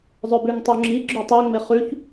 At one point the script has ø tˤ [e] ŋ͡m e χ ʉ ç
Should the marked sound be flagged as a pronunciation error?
no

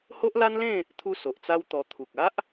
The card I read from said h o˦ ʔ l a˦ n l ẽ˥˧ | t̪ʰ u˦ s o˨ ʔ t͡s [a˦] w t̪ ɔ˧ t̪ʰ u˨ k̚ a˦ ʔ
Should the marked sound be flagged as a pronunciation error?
no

